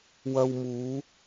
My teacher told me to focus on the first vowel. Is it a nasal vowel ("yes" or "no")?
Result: no